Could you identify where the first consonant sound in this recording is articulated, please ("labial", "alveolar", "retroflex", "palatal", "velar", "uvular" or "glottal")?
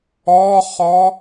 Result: uvular